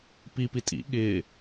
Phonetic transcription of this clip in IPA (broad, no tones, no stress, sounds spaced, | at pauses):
p i p i tʼ ḭ ɠ ɪː